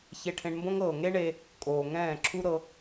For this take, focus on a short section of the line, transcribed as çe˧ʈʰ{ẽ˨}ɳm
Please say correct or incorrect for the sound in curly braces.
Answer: incorrect